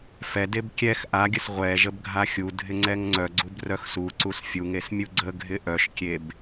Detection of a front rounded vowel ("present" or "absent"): present